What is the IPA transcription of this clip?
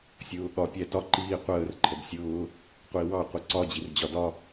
sʲ ʊː ɠ ɒ pʲ æ t ɒ ǃ iː qʷ əː r ǃʰ ə b sʲ ʊː | qʷ i w ɑ qʷ i ǀ ɒ d͡ʑ i r d͡ʑ ɒ d ɒ

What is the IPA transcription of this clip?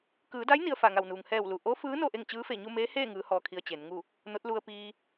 k ɯː˩˧ d a˧˥ j n i˧ ə̯ f a˧˩ ŋ a˧˩ w n uː˩ ŋ h ɛː˧˩ w l u˩ ʔ o˧˥ f ɯː˧˥ n o˥˨ ʔ e˥˨ ŋ t͡ɕ ɯː˧˥ f e˧˩ ɲ u˥˨ m eː˧˥ h eː˥˨ ŋ ɯː˩˧ h ɔː˧ kʰ i˧ ə̯ t͡ɕ e˩˧ n ŋ u˥˨ | n o˧˥ t̚ l u˧ ə̯ p iː˧

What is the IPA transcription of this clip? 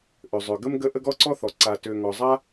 ʔ ø˩ zˤ ø˩ ɡ ə˥ m ɡ ə˦ ʔ ə˦ ɡ ɔ˥ ǀ ɔ˥ θ ɔ˩ ǀ a˨ t ø˨ ŋ ɔ˩ zˤ a˥

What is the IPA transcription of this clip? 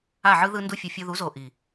a˦˨ ʕ ɯ˦ ð ɯ˧ n d u˧ fʲ ɯ˨ fʲ o˧ ð u˨˦ z o˨ ʔ i˨

